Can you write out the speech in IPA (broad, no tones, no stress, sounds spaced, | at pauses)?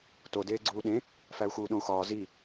t o d eː ɡ͡ǀ uː ɗ ẽ | f æ u̯ x uː ɗ õ u̯ x ɒː z i